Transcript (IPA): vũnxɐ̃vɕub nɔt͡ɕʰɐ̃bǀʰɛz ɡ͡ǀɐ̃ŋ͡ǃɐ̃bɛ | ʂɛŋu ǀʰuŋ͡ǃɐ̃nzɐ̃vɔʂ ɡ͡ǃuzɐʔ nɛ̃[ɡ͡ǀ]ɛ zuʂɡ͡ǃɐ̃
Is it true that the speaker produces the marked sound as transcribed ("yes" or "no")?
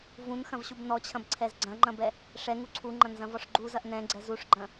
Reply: yes